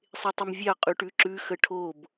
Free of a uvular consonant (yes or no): no